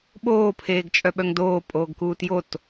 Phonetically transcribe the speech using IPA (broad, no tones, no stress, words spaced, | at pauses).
ɓoːpʰeːɡ t͡ʃʼœɓœŋdoː pʼoːɡkuːtjot